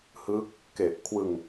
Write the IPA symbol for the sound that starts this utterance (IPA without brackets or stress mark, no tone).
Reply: h